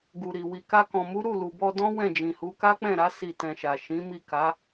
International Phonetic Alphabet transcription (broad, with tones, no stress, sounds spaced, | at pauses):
ɡ u˨ ɾ i˨ w i˨ k a˧ k ɔ̃˨ m u˨˦ ɾ u˦˨ l u˨ b ɔ˧ d ɔ̃˦ w ɛ̃˦˨ d͡ʒ ĩ˨ h u˨˦ k a˦ k͡p ɛ̃˦˨ ɾ a˨˦ s i˦˨ t ɛ̃˧ ʃ a˨ ʃ ĩ˨˦ m i˦˨ k a˨˦